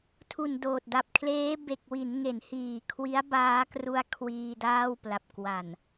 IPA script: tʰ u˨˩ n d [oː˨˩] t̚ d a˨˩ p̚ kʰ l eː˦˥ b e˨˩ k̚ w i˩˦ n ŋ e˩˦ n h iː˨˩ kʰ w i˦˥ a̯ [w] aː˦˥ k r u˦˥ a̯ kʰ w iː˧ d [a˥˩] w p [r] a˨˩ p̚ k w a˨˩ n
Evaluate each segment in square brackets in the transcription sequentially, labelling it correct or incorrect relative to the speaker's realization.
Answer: correct, incorrect: b, incorrect: aː˥˩, incorrect: l

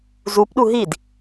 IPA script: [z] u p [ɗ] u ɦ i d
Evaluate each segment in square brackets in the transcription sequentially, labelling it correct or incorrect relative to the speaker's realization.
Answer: correct, correct

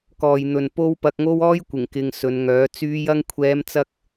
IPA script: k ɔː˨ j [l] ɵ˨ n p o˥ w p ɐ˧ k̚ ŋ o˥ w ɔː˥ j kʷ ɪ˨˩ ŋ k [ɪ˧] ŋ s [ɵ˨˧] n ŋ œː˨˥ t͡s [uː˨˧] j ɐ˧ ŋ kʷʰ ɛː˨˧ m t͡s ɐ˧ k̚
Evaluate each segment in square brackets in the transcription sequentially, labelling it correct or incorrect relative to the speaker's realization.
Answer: incorrect: n̪, correct, correct, incorrect: yː˨˧

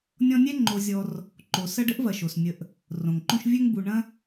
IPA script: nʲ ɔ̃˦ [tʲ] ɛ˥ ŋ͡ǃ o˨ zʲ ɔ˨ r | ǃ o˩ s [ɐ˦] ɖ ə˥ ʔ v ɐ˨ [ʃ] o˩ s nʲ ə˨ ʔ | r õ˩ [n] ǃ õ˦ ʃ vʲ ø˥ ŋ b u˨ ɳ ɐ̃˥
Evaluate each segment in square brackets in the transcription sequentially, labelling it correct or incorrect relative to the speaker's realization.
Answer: incorrect: nʲ, correct, correct, incorrect: ŋ

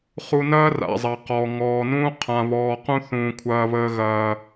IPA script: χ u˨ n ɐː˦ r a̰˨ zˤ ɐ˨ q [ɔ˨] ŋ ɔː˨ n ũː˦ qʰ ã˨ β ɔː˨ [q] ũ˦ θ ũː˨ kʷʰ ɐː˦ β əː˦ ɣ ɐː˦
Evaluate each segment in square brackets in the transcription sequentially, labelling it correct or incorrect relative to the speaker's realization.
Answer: correct, correct

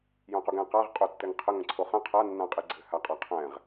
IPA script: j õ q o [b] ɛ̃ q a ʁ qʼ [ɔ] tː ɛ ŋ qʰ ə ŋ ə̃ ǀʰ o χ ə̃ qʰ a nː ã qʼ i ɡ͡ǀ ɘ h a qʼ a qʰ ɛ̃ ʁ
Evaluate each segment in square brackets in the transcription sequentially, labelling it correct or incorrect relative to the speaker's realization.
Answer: incorrect: ɡ, incorrect: o

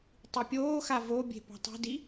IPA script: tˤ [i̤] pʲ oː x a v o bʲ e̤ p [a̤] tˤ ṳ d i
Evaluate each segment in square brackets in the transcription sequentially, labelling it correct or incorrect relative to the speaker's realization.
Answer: incorrect: i, correct

